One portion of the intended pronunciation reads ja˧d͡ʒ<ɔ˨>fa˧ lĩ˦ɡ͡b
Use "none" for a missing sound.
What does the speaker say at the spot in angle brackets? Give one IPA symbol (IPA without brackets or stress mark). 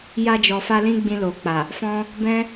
ɔ˨